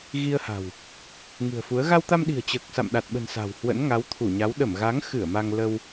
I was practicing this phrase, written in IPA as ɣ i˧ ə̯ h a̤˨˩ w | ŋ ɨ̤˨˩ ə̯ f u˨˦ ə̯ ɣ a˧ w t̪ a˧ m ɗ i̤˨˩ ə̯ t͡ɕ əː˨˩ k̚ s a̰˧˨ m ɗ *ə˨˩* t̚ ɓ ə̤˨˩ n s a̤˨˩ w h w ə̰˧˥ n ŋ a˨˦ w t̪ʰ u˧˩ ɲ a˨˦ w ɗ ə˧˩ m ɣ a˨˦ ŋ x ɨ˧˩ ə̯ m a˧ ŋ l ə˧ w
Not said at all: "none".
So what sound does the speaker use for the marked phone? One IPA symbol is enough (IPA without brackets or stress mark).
a˨˩